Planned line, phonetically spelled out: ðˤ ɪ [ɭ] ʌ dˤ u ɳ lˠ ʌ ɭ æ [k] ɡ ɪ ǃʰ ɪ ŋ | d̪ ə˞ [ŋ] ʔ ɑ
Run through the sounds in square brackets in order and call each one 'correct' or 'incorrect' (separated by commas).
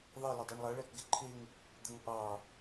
incorrect, correct, correct